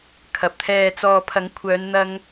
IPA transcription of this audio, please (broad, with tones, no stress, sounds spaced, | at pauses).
kʰ ɐ˨ p̚ t̪ʰ ɛː˨ t͡s ɔː˨ pʰ ɐ˨˥ ŋ kʷʰ œː˨˧ n n̪ ɐ˧ ŋ